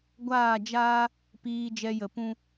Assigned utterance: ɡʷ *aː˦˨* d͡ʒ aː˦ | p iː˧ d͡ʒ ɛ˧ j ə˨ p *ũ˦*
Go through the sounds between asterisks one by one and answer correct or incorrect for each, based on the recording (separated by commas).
correct, correct